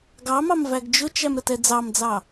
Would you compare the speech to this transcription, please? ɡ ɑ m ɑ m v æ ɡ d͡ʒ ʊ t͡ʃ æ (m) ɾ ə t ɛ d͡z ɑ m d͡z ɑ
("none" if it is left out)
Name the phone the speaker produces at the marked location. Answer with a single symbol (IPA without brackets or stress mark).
m